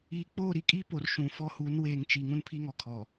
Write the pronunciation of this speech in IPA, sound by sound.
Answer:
iː˨ k͡p oː˦˨ ɾ i˦˨ kʼ iː˦ p o˨ r ʃ ũ˨˦ f ɔ˦ h uː˨˦ n w eː˨ ŋ t͡ʃ i˨ ŋ ũ˦ n pʰ i˦ ŋ ɔ˨ kʰ ɔ˨

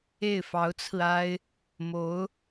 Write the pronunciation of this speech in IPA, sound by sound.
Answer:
e˥˩ ɪ̯ f ɑ˧˥ ʊ̯ t͡sʰ ɹ̩˧ a˥ ɪ̯ | m o˧˥ ʊ̯

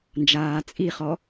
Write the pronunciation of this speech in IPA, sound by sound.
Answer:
n d͡ʒ aː t͡sʼ i χ ɔ

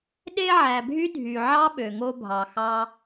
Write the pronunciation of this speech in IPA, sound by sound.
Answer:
ɗ e˧ ʕ æ˨ bʱ y˦ dʱ y˨ ʕ ɑ˦ ɓ ø˨ ŋ o˧ bʱ ɑ˨ x ɑ˧

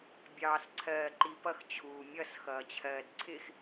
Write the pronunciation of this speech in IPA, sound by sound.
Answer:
bʲ ɑː s ǀʰ ɜː ǃ i p ʌ x t͡ɕʰ uː mʲ ʌ s x ʌː t͡ɕʰ ɜː d ǀʰ ɪ x

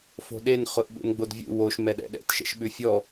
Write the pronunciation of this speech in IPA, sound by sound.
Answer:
f o̤ ɗ e n χ ʊ ʔ ɓ ṵ n ɡ͡b o d vʲ ṵ w o ʃ m ɛ ɗ ɛ̰ ɗ ɛ̰ t ʃ ɛ̰ ʃ ɓ ʉ fʲ ɔ

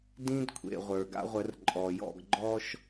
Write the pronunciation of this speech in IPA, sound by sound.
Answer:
d ĩ˦ d kʷʰ ḛ˨ ʁʷ ə˞˨ ɡ a̰˦ ʁʷ ə˨˦ r ǃʼ ɔ˨ j ɔ̰˦˨ ɡ ɡ͡ǃ ɔ˦ ʃ

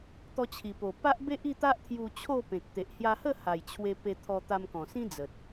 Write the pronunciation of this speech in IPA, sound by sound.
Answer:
t̪ ɔ˧ t͡ɕʰ i˨˩ p o˨˩ p a˦ ʔ b e˦ ʔ i˥˧ t̪ a˦ ʔ t̪ʰ j u˧ t͡ɕʰ o˥˧ p ẽ˨ k̚ t̪ e˨ ʔ h j a˧ h ə˥˧ h a˨˩ j t͡ɕʰ w e˧ p e˧ t̪ʰ ɔ˧ t̪ a˧ m k ɔ̃˨˩ s ĩ˦ d͡z ə˨ t̚

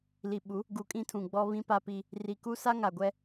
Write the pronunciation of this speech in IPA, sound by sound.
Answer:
l i˨ ɓ u˨˦ | ɡ u˨ kʼ ĩ˦ tʰ ũ˨ ɡ͡b ɔ˦ β ĩ˦ p a˦ p i˦ | r i˨ k u˦ s a˦ ŋ a˨ ɡʷ ɛ˦

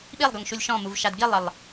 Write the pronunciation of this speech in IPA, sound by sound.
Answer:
ɓ i lˠ ɡ ɤ ŋ ʃ u lʲ ʃ ɔ̃ m u v ʃ a d ɡ i lˠ e lˠ

